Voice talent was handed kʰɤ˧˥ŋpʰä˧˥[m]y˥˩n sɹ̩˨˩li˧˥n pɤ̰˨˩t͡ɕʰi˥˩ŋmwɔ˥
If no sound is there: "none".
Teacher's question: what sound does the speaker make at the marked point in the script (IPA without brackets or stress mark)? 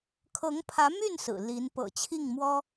m